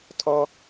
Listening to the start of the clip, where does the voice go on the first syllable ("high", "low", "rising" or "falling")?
low